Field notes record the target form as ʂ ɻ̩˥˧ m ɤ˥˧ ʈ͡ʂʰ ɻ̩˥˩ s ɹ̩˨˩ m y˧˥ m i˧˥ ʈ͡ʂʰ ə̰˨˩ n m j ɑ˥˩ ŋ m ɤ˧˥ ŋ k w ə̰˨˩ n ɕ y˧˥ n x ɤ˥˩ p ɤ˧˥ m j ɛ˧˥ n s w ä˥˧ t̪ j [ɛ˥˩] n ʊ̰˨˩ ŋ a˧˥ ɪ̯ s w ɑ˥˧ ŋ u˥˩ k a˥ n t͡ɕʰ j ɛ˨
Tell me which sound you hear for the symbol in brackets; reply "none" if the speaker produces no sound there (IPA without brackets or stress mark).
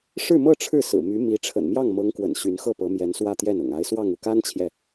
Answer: ɛ˥˩